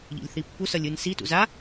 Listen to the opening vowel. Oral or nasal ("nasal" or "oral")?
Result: oral